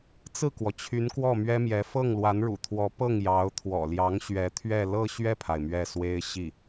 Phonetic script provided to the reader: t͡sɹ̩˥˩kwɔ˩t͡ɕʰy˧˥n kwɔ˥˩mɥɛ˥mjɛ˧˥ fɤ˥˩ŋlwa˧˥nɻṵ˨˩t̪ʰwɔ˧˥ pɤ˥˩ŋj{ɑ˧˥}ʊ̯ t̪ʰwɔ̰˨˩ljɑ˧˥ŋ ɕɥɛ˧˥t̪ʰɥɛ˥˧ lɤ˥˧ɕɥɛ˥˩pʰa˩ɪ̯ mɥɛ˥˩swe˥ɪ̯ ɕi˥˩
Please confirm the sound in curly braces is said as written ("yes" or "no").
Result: yes